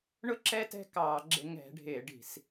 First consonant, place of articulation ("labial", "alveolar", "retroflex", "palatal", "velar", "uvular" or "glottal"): retroflex